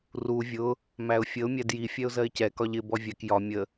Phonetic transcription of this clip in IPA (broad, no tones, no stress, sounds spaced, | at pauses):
r u vʲ ʊ | m æ ʊ̯ fʲ ə ʊ̯ mʲ æ d j i fʲ ɛ ʊ̯ z ɜ ɪ̯ c ɛ k ɒ ʎ ɪ b ɔ vʲ ɛ k j ɒ mʲ ə